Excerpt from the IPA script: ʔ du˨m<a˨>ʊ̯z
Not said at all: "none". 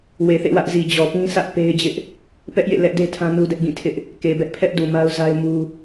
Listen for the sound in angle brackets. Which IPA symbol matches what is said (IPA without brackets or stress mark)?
a˦